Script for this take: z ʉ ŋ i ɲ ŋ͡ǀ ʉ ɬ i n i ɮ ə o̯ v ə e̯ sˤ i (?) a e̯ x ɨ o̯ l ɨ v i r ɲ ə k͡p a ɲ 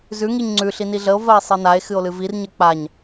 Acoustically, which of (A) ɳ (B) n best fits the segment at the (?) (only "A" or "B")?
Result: B